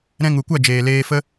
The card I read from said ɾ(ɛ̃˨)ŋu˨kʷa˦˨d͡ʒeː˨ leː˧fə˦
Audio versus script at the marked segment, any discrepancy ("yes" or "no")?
yes